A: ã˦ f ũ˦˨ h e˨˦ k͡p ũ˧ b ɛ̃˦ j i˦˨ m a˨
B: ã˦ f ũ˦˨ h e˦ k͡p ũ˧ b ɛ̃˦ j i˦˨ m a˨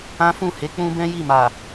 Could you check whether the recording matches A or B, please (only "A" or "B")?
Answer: A